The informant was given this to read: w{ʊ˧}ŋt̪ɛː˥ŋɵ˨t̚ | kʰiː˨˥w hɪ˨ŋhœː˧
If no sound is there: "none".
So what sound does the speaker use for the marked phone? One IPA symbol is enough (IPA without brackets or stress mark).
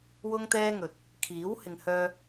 ʊ˥